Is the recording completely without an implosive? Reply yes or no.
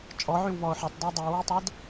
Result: yes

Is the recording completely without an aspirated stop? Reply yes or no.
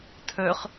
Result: no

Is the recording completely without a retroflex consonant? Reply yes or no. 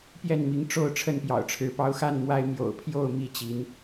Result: no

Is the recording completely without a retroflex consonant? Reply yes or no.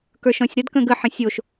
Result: yes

